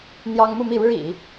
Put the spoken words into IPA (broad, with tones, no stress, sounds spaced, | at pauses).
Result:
n̪ j ɑ˥ ŋ m u˥˧ m i˥˩ ɻ ɻ̩˥ ḭ˨˩˦